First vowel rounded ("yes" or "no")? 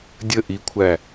no